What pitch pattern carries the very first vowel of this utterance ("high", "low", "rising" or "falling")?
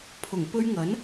low